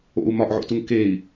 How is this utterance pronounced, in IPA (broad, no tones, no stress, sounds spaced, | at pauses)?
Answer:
o̰ u̯ m ɒ ʔ ʕ o̰ t u ŋ k e i̯